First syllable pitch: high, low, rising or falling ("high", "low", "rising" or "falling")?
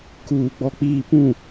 low